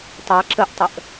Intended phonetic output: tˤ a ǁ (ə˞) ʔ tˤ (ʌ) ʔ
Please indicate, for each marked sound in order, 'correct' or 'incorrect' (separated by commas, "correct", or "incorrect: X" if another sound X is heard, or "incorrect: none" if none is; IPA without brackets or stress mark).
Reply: incorrect: ə, incorrect: ə